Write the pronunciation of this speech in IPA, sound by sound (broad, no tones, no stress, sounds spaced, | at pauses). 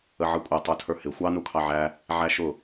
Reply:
ə ʕ ʌ kʷʼ ʌ tˤ ə˞ tʰ ə˞ h ɪ xʷ ɑ n u kʰ ɑ ʕ æ | ʕ æ ʃ ʊ